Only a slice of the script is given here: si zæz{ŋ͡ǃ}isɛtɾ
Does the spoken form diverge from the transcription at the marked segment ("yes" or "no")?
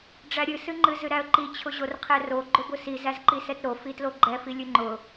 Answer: yes